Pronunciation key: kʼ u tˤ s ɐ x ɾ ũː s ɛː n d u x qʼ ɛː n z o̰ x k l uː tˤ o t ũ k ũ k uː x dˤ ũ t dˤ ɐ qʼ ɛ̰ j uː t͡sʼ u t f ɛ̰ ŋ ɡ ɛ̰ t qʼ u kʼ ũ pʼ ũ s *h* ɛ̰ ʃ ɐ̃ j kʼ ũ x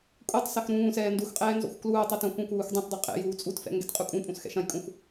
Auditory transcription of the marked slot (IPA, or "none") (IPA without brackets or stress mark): x